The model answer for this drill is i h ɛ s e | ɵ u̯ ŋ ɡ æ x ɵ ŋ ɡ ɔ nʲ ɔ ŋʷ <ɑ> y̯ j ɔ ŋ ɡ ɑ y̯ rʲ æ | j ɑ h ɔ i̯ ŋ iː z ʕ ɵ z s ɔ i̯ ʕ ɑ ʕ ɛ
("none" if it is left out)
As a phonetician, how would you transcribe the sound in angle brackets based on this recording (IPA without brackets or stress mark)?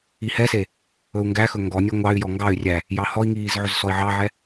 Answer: ɑ